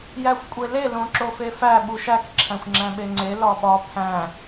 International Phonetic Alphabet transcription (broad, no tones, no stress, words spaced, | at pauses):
jæxʷkʷʼele lõǁofefæ ɓuʃæk ǁʰæ̃xʷŋ͡ǁæ̃ɓeŋ͡ǀe lɒɓɒ pʰæ̃